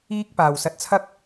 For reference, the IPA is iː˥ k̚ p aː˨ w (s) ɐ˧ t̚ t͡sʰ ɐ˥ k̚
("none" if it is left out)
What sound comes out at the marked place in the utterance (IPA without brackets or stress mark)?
s